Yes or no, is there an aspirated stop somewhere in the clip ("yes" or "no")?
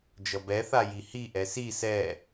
no